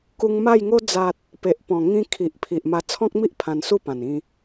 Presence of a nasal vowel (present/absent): present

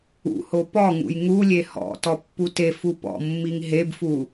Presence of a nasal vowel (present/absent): absent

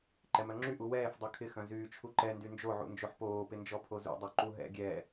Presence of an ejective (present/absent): absent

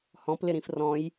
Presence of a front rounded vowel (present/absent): absent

